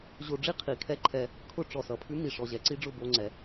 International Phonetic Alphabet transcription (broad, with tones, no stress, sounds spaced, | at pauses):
ʑ o˧ ɖ͡ʐ i˥ qʰ i˩ kʰ ɛ˥ ǃʰ ɛ˧ | kʰ ʊ˥ ʈ͡ʂ ɔ˩ s ʌ˩ pʰ ʉ˥ m i˩ ʂ ɔ˩ ʑ ɛ˩ ǀ i˥ ɖ͡ʐ ʊ˧ b o˧ ŋ͡ǀ ɛ˩